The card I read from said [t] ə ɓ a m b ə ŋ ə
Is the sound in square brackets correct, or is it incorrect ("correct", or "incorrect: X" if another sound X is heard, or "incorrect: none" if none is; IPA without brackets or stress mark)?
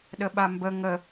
incorrect: ɗ